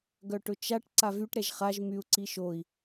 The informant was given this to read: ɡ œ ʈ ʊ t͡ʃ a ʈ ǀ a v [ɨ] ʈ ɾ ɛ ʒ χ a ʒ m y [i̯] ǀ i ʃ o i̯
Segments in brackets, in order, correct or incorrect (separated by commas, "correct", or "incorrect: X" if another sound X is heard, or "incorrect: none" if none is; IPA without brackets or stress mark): incorrect: y, incorrect: u̯